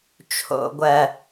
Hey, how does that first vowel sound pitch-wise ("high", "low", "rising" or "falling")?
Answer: low